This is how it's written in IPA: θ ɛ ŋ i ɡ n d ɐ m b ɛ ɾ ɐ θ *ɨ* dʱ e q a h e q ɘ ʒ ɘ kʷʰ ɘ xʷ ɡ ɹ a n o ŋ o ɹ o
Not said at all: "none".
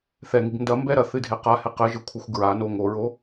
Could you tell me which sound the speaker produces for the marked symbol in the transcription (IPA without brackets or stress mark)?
ɨ